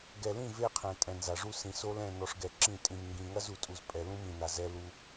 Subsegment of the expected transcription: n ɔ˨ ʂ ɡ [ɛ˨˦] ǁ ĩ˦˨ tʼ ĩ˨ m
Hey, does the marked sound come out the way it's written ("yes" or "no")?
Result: no